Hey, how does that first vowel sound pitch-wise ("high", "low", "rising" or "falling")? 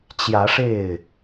rising